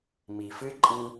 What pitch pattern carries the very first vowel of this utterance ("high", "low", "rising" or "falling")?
low